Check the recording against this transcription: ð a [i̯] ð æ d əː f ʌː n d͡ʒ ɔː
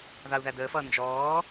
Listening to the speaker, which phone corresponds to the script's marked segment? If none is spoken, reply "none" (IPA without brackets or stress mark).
u̯